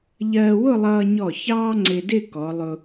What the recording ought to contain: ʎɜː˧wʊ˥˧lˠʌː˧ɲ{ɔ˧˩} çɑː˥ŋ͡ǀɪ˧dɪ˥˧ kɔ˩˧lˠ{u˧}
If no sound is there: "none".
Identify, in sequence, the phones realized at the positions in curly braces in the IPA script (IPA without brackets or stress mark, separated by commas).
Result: ɔ˧˩, ʊ˧